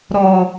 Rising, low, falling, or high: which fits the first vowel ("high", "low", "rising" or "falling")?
low